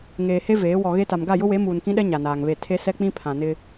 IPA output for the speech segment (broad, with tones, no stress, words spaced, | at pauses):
ŋeː˨he˦ veː˨˦ wɔ˨ɣe˦ta˨m ɡa˦˨jʊ˦we˨˦ muː˨nkĩ˦ɗɛ˦ ɲa˨naː˨ŋβe˦˨ tʰe˦sɛ˦k͡pĩ˦ pʰã˨nɪ˦